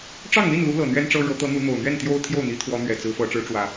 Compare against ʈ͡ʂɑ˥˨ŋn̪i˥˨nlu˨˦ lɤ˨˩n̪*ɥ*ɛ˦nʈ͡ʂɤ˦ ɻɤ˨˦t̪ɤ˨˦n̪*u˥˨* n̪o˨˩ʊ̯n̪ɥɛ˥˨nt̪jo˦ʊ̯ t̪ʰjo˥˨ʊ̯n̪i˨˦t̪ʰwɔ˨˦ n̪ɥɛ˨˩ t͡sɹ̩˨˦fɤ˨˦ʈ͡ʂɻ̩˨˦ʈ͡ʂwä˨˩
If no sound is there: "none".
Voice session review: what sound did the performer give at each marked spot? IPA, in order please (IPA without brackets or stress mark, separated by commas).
ɥ, u˨˦